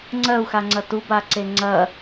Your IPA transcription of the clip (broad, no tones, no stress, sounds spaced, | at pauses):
ŋ͡ǀ ɜ u̯ x a ŋ͡ǀ ɐ t u b a ǀ e ŋ͡ǀ ɐ